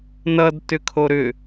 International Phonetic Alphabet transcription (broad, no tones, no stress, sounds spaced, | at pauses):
n ʌ d t ʏ kʰ o ɾ ʏ